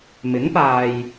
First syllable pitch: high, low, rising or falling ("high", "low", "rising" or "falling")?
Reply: rising